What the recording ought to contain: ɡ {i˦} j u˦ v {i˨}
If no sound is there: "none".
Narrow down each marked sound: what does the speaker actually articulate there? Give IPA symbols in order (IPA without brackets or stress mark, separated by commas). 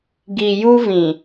i˨, ĩ˨